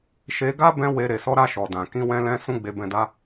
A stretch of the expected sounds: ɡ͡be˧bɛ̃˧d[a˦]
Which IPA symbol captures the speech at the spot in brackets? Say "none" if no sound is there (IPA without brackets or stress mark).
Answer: a˦